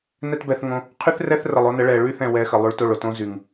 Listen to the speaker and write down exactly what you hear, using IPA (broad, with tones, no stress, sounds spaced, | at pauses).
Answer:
n ɛ˦ t b ɛ˧ θ ŋ õ˧ | qʰ y˦ θ r ɛ˦ θ r ə˨ lˠ o˦ n ə˨˦ ɭ ɛ˨ ɭ y˦˨ θ ɛ̃˨ w ɛ˨˦ x ə˨ lˠ y˧ ɭ t o˦˨ ɭ o˧ t õ˦ z y˨ ŋ